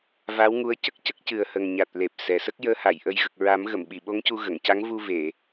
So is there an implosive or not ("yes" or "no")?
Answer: yes